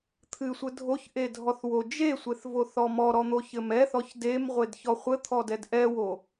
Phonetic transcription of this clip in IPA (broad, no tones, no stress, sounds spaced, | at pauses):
t̪ʰ ɨ sʷ ɘ dʱ o ç ʔ e dʱ ɔ θ w o d͡ʒ e sʷ e θ v o θ ɔ m ɔ ɾ ɔ n̪ o ç ɘ m ɛ θ ɔ ç d e m ʁʷ e d ç ɔ χʷ ɘ t̪ʰ ɔ d ɛ d ʔ ɛ w o